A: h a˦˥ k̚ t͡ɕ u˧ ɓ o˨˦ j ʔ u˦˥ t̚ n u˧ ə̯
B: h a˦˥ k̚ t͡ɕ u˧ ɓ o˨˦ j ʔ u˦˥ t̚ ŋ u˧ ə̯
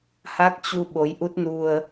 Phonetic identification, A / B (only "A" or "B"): A